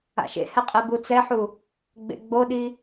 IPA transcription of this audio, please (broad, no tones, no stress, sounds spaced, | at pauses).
a̰ ʃ ḛ h ɛ qʼ e b u t͡s ɛ ħ u | ɡ͡b ḛ ɡ͡b o ɗ i